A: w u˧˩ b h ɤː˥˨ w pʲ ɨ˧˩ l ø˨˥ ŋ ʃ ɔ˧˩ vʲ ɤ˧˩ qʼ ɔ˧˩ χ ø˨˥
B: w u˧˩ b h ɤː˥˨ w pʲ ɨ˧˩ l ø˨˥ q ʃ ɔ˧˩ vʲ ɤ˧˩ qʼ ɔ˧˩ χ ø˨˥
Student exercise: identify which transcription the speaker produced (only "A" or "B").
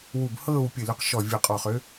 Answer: B